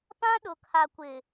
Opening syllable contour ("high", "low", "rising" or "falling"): high